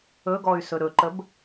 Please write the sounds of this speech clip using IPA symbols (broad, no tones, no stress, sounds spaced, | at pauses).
ɵ ɡ ɔ y̯ s ɵ ɾ ɵ ǃ ə b